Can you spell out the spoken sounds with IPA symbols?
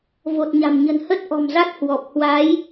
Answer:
v o˨˩ t̚ ɲ a̤˨˩ m ɲ ə̤˨˩ n h ə˦˥ t̚ ʔ ɔ̤˨˩ m z a˦˥ t̚ h w ɔ˨˩ p̚ h w a˨˦ j

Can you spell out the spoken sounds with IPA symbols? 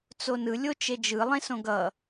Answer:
t͡s o n ɯ lʲ o t͡ʃ e d͡ʒ ɯ lˠ ẽ s õ ɡ ʌ

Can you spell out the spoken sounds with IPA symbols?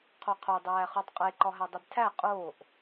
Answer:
qʰ o qʰ o dˤ æː χ u tˤ qʼ e ǃ ɒ ɦ æ dˤ i b tʰ æ qʼ oː ʔ

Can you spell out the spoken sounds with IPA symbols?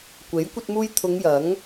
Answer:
kʷ e˨˥ j kʷ ɐ˧ t̚ m uː˧ j t̪ʰ ʊ˨˧ ŋ j ɐ˨˥ ŋ

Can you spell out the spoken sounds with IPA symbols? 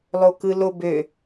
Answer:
lˠ o k ɯ l o b ø

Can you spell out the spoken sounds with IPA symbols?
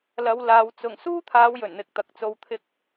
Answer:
l ɐ˨˧ w l aː˨˧ w t͡s ʊ˨˩ ŋ s uː˥ t̪ʰ aː˨˧ w j ɵ˨˩ n n̪ ɪ˨ k̚ t̪ ɐ˨˥ k̚ t͡s o˧ w t̪ʰ ɪ˥ k̚

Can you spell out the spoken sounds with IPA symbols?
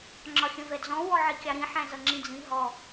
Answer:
ŋ͡ǁ ɒ xʲ ə̃ v ɛ d͡z ɔ̃ w ɔ ʕ i kʲ ɑ ɾ ĩ ħ æ̃ z ʌ ŋ͡ǁ ĩ d͡z ĩ ɦ ɔ

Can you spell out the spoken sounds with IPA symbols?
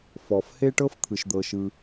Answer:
f ɔ˩ f h e˥ ʈ ɤ˥ f t̪ʰ ɯ˩ ʃ d̪ ɤ˩ ʃ ɯ˩

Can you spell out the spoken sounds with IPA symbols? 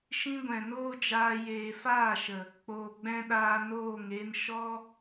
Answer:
ʃ ĩ˦ ɡʷ ɛ̃˨ n oː˦ d͡ʒ aː˧ j eː˨ f aː˦˨ ʃ ə˨ | k͡p oː˨ ɡ͡b ɛ̃˧ ɗ aː˧ n oː˦˨ ŋ e˦ n ʃ ɔ˦

